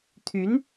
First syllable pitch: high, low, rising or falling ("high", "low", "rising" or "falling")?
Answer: rising